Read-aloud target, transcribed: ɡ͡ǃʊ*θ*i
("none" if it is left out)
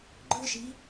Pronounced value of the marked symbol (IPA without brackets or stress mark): ʃ